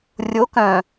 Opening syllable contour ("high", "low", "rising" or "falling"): rising